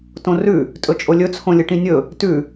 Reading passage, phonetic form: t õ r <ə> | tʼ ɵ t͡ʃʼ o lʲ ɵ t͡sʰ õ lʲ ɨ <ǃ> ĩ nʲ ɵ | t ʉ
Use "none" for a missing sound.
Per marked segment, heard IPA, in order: ʉ, ʈ

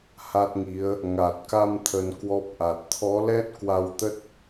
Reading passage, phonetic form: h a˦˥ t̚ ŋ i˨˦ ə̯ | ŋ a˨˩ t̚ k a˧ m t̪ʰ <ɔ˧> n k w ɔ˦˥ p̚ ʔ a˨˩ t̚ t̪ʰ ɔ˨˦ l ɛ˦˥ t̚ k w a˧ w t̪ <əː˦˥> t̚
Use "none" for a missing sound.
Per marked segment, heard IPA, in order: ə˧, ə˦˥

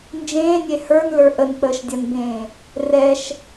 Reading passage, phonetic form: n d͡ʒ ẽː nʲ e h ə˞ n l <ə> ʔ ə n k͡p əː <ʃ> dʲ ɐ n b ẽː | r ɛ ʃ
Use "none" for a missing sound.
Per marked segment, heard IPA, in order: ə˞, ʃ

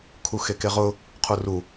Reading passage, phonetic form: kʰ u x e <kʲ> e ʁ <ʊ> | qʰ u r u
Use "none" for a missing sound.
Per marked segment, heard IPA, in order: k, ʊ

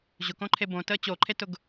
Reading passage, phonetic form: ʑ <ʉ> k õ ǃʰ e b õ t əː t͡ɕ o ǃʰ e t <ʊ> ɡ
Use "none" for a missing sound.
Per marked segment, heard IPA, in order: ʊ, ʊ

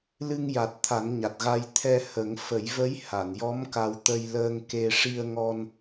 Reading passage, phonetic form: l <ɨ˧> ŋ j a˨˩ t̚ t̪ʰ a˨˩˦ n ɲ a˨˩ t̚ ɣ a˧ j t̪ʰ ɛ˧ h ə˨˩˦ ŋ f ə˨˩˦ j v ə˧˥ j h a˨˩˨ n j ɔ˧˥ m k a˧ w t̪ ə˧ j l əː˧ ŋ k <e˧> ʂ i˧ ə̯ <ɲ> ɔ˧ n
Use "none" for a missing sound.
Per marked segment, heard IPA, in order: ɨ˧, e˧, ŋ

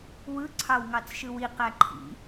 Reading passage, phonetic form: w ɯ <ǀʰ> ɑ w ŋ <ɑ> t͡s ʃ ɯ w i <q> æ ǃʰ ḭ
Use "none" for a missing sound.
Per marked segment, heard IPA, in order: ǀʰ, ɑ, q

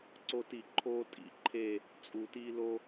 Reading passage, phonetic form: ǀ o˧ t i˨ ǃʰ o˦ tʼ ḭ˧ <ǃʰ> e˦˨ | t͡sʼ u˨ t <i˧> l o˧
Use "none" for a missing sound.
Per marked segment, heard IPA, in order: ǃʰ, i˧

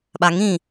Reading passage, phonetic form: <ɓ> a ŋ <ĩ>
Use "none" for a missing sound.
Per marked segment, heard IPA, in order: ɓ, ĩ

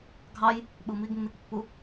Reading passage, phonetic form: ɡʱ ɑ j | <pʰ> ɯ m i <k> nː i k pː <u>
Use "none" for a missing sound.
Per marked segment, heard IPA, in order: ɓ, ɡ, u

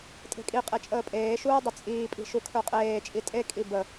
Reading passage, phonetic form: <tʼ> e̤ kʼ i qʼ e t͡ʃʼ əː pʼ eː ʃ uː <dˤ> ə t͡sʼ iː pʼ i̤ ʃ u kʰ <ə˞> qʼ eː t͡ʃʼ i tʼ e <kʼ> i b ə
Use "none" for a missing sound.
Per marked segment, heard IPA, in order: tʼ, dˤ, ə˞, kʼ

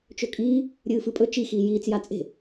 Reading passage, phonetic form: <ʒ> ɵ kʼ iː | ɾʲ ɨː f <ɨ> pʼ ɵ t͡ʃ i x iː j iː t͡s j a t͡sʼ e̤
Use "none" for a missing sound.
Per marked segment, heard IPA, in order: t͡ʃ, ɨ

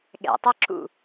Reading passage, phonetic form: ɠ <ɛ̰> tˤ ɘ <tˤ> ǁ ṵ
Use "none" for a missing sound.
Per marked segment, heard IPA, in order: ɛ̰, none

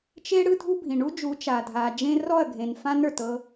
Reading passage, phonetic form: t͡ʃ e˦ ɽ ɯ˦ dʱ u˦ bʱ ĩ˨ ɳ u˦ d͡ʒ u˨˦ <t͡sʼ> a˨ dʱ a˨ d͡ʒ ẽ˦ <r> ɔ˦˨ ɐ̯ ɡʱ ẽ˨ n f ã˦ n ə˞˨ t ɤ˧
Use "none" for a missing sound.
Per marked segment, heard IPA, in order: t͡ʃ, r

